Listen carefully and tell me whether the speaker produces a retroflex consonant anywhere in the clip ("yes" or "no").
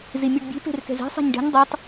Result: yes